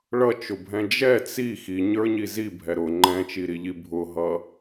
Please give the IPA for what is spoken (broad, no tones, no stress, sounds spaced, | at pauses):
ɭ ʌ t͡ʃ ʊ bʱ ɛ̃ d͡ʒ ɛ t͡s i x i ɲ ə˞ ɲ i z i bʱ ɛ ɾ ʊ ŋ͡ǃ ɛ̃ t͡ʃ i ɾ i ʎ i bʱ ʊ ɦ ʌ